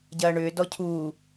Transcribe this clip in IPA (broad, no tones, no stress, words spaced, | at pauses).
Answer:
ɟɐːɳʏː dɔcʰuː